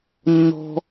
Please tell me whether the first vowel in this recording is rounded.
yes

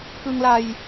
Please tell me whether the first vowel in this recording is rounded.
no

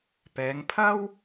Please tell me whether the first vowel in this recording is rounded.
no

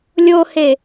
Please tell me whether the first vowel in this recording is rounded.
yes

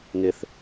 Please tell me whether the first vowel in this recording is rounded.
no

